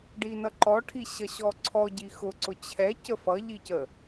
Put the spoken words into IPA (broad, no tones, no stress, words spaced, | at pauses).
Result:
ɖinʌǃɔ ʈʰiɕʌɕɔǀʰɔ ɟixʊ ǀʊt͡ɕʰɛ cəfʌ ʎicə